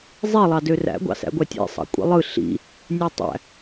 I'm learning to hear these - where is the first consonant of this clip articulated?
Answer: tongue tip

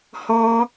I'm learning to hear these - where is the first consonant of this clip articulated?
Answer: throat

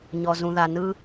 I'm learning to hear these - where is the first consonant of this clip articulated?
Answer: palate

